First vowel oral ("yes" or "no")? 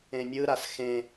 no